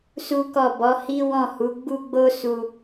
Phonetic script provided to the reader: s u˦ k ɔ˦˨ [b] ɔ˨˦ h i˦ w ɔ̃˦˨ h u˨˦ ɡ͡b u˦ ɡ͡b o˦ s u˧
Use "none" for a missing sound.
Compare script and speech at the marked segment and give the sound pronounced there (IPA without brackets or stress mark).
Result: b